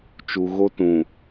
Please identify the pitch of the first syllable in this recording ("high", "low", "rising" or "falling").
low